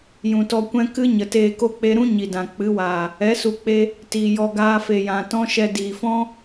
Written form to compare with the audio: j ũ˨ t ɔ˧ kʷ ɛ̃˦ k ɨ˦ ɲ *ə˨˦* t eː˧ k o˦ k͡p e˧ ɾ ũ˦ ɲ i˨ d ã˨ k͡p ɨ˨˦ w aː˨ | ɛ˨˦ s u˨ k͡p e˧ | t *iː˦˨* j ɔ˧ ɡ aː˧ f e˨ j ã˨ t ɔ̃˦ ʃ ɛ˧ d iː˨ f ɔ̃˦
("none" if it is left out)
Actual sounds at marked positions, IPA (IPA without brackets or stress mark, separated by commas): ə˨, iː˨